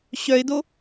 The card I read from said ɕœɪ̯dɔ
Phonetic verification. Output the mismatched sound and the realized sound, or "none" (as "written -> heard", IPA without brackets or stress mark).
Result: ɔ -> o